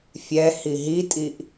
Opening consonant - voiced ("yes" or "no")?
no